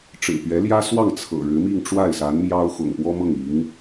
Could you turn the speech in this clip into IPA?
ʈ͡ʂ ɻ̩˨˩ p ɥ ɛ˧˥ l j ä˥ s w ɑ˥˩ ŋ t͡sʰ ɤ̰˨˩ ɻ ɻ̩˧˥ m i˥˧ ŋ ʈ͡ʂ w a˥˩ ɪ̯ s a˧˥ n m j ɑ˥ ʊ̯ x ʊ̰˨˩ ŋ p w ɔ˥ m ɤ˥˩ ŋ i˧˥ ŋ

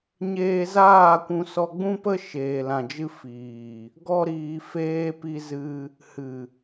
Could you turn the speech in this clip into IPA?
ɲ eː˧ z aː˦˨ kʷ ũ˧ s ɔ˧ ɡ͡b ũ˦ p ə˦ ʃ eː˨ l ã˨ d͡ʒ ɨ˧ f iː˨ | ɡ ɔ˦ ɾ iː˧ f eː˧ p i˧ z ɨ˧ | h ɨ˨

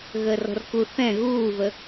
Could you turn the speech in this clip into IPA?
ɣ əː r ɔ̤ r k u θ ɛ̃ ɣ uː v ə

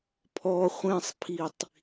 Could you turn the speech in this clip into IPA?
pʰ ɔ χʷ ẽ sˤ pʰ i tˤ

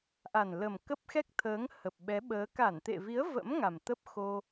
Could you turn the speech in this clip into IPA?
ʔ a˨˩ n l ə˨˩ m k ə˦˥ p̚ x ɛ˦˥ k̚ t̪ʰ əː˨˦ ŋ h ə˨˩ p̚ ɓ ɛ˨˦ ɓ əː˨˦ k a˧˩ n t̪ ḛ˧˨ v i˨˦ ə̯ v ə̰˧˥ m ŋ a˨˩ m t̪ ə˦˥ p̚ x o˧

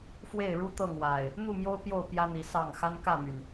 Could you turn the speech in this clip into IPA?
f w e˥˨ ɪ̯ ɻ u˦ t̪ ɤ˥˨ ŋ w a˨˩ ɪ̯ | n̪ u˥˨ m j o˦ ʊ̯ p j o˥˨ ʊ̯ p j ä˦ n̪ i˨˦ s ɑ˥˨ ŋ x a˦ n k ä˥˨ m y˩ n

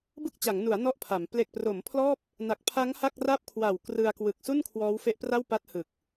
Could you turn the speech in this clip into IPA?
b ɯ˥˩ k̚ t͡ɕ a˩˦ ŋ n u˩˦ a̯ n ɔ˥˩ ʔ pʰ a˩˦ m p l e˨˩ k̚ p r o˩˦ m pʰ l ɔː˥˩ p̚ | n a˨˩ k̚ pʰ a˦˥ ŋ h a˥˩ k̚ r a˥˩ p̚ kʰ w a˨˩ w k r ɯ˧ a̯ k w ɯ˨˩ k̚ s u˥˩ n kʰ w ɔː˦˥ w f e˦˥ ʔ p r a˥˩ w p a˦˥ t̚ h ɯ˨˩ k̚

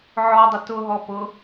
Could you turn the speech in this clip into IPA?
ʕ ɔ dˤ ə t ʊ ɦ ɔ p ʊ

